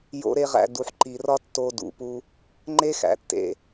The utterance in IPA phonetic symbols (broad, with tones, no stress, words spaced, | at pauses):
jo̰˦ɾe˦ʁæ̰˧ du˨ħǃi˨rɒ˦ tːo˧dṵ˨pu˧ | ŋ͡ǃe˦xæ̰˨tːḛ˨